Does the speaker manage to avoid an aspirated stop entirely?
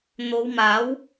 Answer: yes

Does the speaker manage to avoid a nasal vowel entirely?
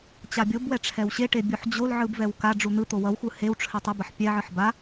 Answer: yes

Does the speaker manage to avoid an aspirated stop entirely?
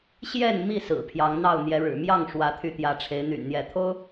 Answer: no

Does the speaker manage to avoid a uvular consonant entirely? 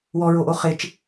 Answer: no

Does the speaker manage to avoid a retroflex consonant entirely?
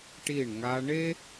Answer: no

